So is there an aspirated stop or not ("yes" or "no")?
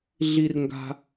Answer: no